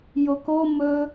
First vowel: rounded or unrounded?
rounded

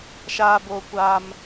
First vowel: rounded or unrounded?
unrounded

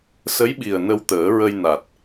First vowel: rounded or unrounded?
unrounded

